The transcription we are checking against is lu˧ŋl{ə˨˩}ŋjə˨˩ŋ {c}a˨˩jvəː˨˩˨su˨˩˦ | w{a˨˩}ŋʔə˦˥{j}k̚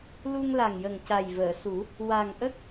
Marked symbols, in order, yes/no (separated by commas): no, yes, yes, no